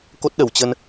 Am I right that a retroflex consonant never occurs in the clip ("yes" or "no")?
yes